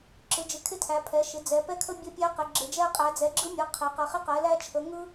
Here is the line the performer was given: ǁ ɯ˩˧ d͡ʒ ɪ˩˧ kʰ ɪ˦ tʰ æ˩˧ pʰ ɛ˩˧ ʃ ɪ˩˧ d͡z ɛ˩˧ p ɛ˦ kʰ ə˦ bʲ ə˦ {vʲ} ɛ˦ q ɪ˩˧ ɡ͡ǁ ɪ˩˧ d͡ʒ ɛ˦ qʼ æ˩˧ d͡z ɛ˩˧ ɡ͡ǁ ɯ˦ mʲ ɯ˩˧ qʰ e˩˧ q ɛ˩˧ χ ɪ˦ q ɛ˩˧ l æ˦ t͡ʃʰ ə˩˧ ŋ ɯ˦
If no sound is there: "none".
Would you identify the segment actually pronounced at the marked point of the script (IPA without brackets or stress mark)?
pʲ